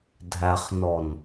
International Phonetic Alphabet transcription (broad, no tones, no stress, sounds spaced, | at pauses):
dʱ æ χ n ɔ n